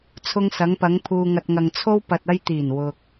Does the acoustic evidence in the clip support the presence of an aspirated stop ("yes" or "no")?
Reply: yes